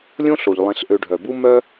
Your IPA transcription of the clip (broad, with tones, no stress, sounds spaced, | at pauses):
lʲ õ˥ ɬ o˩ ʎ lˠ ẽ˨ ɬ ʔ ø˨ ɖʱ œ˩ b u˦ m œ˦